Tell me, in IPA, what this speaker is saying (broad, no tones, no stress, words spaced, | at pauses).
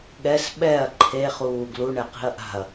ɠɛs ɓɛɐ̯ ǃʰeχuː ɡluɳɛ qi̤ɐ̯ʔa̤ɐ̯